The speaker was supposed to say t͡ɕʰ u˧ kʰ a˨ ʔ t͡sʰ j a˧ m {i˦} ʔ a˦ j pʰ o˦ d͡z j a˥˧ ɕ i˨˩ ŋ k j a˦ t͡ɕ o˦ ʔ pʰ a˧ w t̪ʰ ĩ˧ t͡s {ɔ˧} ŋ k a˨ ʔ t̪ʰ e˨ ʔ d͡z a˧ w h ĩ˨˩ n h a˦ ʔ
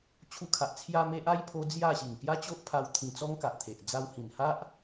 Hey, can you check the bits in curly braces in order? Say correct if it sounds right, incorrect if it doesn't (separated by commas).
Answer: incorrect, incorrect